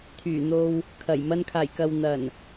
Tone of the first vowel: low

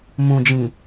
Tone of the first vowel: low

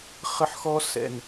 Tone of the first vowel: high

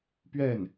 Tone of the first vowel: falling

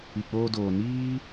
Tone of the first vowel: low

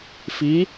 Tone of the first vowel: rising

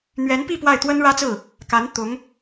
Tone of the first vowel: rising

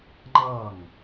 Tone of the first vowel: falling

